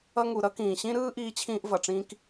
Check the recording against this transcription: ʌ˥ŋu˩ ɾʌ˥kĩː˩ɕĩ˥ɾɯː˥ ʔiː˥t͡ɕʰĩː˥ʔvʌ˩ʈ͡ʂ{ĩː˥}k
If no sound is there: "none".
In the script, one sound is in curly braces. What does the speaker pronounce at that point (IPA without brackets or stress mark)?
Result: ĩː˥